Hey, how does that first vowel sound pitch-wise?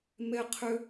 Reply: high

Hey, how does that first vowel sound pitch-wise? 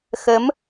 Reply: rising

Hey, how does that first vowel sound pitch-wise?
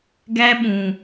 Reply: high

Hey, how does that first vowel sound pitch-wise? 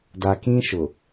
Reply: low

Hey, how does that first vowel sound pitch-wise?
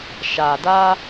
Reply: low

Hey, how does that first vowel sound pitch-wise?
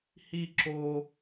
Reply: high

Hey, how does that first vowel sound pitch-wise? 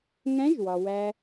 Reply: rising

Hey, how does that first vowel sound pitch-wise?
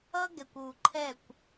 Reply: high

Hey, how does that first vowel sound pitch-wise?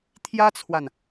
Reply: high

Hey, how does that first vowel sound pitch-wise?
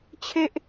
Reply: high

